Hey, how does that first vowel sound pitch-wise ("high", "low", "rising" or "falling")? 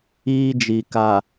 high